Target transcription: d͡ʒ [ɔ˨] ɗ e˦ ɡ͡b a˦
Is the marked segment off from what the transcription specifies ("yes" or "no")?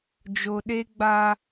yes